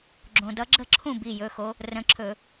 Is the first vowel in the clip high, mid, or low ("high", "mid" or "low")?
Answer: mid